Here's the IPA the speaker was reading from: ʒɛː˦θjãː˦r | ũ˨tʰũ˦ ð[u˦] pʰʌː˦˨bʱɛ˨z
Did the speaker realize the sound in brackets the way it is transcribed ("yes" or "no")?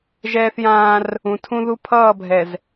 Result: yes